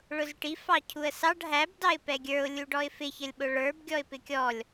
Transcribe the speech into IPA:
ɭ ʊ z ʈ i f ɑ cʰ u ə̯ s ɑ ɖ ɦ æ b d ɑ ɪ̯ p ɛ ɡʲ ə˞ ʊ̯ lʲ u ɖ ɔ ɪ̯ f ɪ ç ə lʲ ɓ ʊ ɭ ə˞ b ɡʲ ɔ ɪ̯ p ɪ kʲ ɔ lʲ

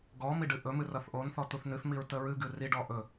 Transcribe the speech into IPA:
ɡ ɔ m i ɖ ɨ ʔ ɵ m ɨ r ʌ θ ʔ o n θ ɔ t u θ n ɨ θ m i ɹ t ə ɹ ɨ ɡ ɨ r i ɖ ɔ ʔ ɵ

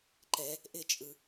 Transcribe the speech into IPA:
ǃ ɛ | ʔ ɪ t͡ʃʼ ɯ

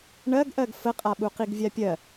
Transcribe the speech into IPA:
ɳ ɜ ɡ ʔ ɜ ɡ f ə qʼ a ɓ u q i ɡ vʲ a pʲ ɜ

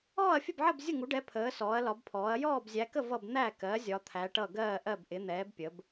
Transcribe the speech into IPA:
ɔː˥˨ ɐ̯ fʲ ə˥˨ b ʕ ə˥˨ b zʲ ʊ˥˨ ŋ u˨˥ ɖ ɛ˨˥ pʰ əː˨˥ s ɔː˨˥ ɐ̯ l ɒ˨˥ b pʰ ɔː˨˥ ɐ̯ j ɔː˥˨ b zʲ æ˨˥ k ə˥˨ v ʌ˥˨ b n̪ æ˥˨ k ɜ˨˥ zʲ ɒ˨˥ t̪ʰ æ˨˥ ʈ ʌ˥˨ ɡ ɜː˥˨ ʔ ɜ˥˨ b ʔ ɪ˨˥ n̪ ɛː˨˥ b pʲ ə˨˥ b

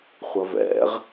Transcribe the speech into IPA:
χʷ ɐ v ɛ̰ ʁ

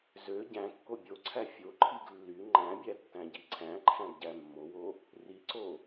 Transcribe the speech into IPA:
z ø ɟ æ̃ kː o bʲ o ǀʰ æ fʲ o ǃʰ i ɡ lː y ŋ͡ǃ æ̃ bʲ æ tː æ̃ ɟ i ǀʰ æ̃ ǃʰ æ̃ ɡ ɟ æ mː o w o | r i ǀ o

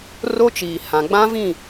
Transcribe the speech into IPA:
r o˦ t͡ʃ iː˨ h ã˨ ɡ͡b ã˦ v ĩ˦˨

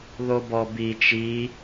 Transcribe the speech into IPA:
ð o b ɔ b i t͡ʃ i

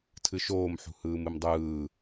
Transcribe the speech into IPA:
tʰ ɨ ʃ oː m ħ ṳ h ɯː m ɨ m dˤ ɯː

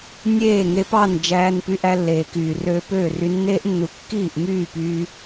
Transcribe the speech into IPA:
nʲ eː˦˨ ŋ e˧ p ɑ˦˨ n d͡ʒ æː˧ n p y˧ ʔ æ˦ lː eː˨ k yː˨ r øː˦ p øː˦˨ r y˧ nː eː˦ ʔ nː u˨ kː iː˦˨ ʔ m yː˦˨ p yː˧

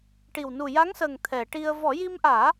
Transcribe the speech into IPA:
ʈ i˨˩ w n u˨˩ j a˧˥ ŋ s əː˨˩ ŋ t̪ʰ ɛ˨˩˨ ʈ i˧ ə̯ v ɔ˨˩˦ j i˧ m ʔ aː˨˩˦

